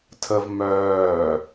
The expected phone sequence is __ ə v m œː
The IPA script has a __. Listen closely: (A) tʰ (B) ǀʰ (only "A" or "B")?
A